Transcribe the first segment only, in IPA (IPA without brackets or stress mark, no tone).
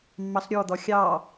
mː